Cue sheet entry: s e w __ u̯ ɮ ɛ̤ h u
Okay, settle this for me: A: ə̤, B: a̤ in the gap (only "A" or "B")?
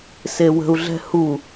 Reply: A